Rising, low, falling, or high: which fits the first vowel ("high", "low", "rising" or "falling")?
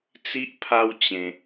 high